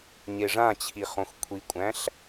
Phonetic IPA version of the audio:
ɲ e ʐ ã t͡ɕʰ i χ õ x kʷʰ i kʷʼ æ̃ ɬ

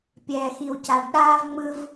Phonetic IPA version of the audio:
pʲ ɛː˨ x i˨ w c a˨ ɖ ɗ aː˦ v ŋ͡m ɯ˦ v

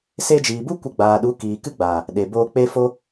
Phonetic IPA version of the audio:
s e˧ d͡ʒ iː˨ b u˦ kʷ ə˦ ɡ͡b aː˧ ɗ u˨˦ k iː˨ k ɨ˦ ɡ͡b aː˨ | ɗ e˨ b oː˧ k͡p e˦ f o˦

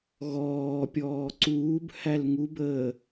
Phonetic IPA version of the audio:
ɣ ɔː pʲ ɔː ǀ uː b h æ l ŋ u b əː

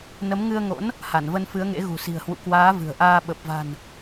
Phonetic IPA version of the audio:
n ə˨˦ m ŋ ɨ˧ ə̯ ŋ o̰˧˥ n | h a˧˩ n v ə˧ n f ɨ˨˦ ə̯ ŋ ḛ˧˥ ɣ ṳ˨˩ s i̤˨˩ ə̯ h w ṵ˧˨ k w aː˨˦ v ɨ̤˨˩ ə̯ ʔ aː˧ ɓ ə˨˩ p̚ v a̤˨˩ n

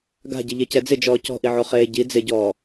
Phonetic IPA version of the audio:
ɡ a̤ ɟ ɪ ʎ e c ɛ d͡z ɪ d͡ʒ ɔː c ɔ̤ ʔ i ʕ o χ eː ɟ i d͡z ɪ ɟ ɔː

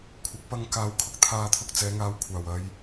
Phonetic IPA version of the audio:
kʷʰ ɐ˨˥ k̚ p ɐ˧ ŋ k aː˨˧ w kʰ ʊ˨˥ k̚ t̪ʰ aː˧ t̪ʰ ʊ˧ k̚ t͡s ɛː˨˧ ŋ aː˨˧ w kʷʰ aː˨˩ w ɐ˨˧ j

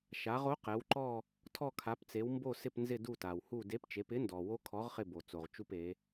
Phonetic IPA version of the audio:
ʃ a˩˧ ʁ o˨˥ q ɛ˩˧ w ǃ ɔ˦˨ | tʰ ɔ˦˨ kʰ a˩˧ p t͡s e˩˧ w m b o˦˨ s ɪ˦˨ p n z ɪ˦˨ d u˦˨ t a˩ w h u˦˨ d e˨˥ p t͡ʃ e˩˧ p ɪ˨˥ n d ɔ˩ w o˦˥ kʰ ɔ˨˥ ʁ χ ɪ˦˨ b o˩ t͡s o˩ ʁ t͡ʃ u˦˨ p e˩˧

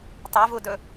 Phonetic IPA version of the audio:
tˤ a v u d ɵ

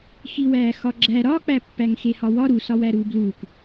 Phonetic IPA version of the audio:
x i w æː x ɒ ɡ͡ǁ æ ɾ ɒ k͡p æ pː æ ŋ x e h ɒ w ɒ ɾ u s ɒ w æ ɾ uː b l uː k

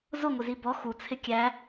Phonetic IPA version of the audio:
z ʊ ŋʷ ɪ z i b ɔ x u t͡sʰ ɪ kʲ æ

